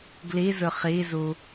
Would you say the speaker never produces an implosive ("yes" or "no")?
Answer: yes